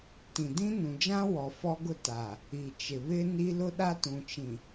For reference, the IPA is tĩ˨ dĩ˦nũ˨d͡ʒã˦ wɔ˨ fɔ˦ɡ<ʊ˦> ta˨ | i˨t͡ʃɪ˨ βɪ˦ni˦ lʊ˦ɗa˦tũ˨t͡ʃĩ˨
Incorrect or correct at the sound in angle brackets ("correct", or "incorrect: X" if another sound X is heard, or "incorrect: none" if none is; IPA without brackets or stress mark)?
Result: correct